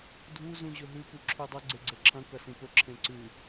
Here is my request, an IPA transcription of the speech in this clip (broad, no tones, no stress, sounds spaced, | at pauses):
dʱ u z ũ ʑ ɵ ɦ ʉ p u ǁʰ ʉ dˤ ɵ ɡ͡ǀ e ɡ͡ǀ e ǁʰ ɐ̃ k ɐ s ĩ p ɵ ǁʰ ẽ ǀ ʉ